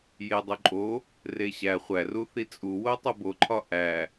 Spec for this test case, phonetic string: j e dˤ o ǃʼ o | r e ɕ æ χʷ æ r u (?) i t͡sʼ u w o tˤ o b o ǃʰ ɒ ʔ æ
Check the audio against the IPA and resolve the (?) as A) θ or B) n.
A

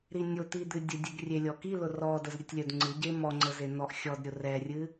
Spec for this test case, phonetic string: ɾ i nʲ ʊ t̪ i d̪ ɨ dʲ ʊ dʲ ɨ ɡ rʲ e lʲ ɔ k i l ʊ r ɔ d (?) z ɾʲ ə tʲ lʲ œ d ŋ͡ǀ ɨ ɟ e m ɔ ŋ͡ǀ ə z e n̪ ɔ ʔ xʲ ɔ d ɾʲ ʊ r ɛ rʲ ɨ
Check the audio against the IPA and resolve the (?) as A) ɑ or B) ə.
B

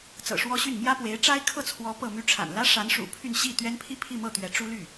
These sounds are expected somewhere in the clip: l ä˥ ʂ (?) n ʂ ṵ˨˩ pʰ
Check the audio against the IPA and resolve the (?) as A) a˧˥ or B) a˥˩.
A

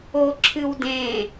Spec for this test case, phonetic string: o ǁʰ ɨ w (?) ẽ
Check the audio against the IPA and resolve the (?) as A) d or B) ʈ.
A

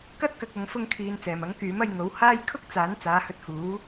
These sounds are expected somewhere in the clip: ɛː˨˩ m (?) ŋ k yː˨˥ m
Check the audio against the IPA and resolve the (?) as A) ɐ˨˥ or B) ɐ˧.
A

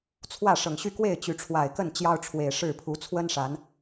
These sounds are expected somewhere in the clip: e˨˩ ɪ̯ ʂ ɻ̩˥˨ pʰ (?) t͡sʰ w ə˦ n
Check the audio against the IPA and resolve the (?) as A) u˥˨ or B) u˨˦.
B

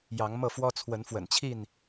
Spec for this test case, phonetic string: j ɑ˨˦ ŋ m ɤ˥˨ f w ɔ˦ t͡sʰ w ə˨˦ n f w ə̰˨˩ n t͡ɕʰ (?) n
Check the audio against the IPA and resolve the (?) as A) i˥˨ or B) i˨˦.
A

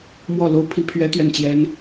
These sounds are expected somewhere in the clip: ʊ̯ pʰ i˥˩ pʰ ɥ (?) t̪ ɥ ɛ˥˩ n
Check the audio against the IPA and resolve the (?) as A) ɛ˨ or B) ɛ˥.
B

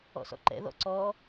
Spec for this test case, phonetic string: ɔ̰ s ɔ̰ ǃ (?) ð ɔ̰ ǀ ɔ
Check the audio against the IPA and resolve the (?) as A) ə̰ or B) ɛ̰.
B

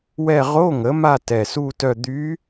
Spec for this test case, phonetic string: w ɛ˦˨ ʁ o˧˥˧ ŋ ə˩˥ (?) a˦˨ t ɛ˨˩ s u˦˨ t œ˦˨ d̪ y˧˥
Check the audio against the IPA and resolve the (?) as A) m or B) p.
A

